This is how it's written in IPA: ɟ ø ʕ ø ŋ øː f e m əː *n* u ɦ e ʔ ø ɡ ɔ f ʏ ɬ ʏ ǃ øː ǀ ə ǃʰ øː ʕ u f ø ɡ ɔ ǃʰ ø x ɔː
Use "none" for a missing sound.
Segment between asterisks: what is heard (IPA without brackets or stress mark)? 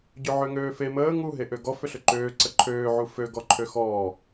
ŋ